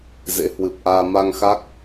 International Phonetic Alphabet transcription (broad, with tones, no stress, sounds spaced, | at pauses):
z ḛ˧˥ h w ɨ˨˩ p̚ ʔ aː˧ m a˧ ŋ x a˦˥ k̚